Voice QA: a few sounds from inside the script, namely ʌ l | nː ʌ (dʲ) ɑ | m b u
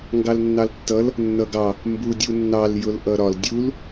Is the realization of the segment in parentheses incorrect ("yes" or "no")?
yes